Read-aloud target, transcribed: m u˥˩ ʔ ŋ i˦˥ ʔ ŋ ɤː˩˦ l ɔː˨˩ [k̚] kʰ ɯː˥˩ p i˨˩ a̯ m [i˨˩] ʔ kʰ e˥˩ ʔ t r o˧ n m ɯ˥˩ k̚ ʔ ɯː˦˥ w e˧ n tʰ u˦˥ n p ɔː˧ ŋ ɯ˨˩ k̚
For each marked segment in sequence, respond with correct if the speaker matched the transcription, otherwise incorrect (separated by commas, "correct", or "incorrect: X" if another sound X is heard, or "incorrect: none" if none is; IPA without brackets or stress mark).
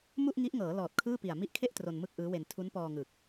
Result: incorrect: t̚, incorrect: i˦˥